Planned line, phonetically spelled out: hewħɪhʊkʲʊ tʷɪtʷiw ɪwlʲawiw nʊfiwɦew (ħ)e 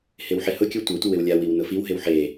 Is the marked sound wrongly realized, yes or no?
no